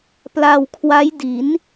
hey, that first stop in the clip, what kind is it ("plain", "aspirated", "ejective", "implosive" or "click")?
plain